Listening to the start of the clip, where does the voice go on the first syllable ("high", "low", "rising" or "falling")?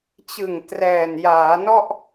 low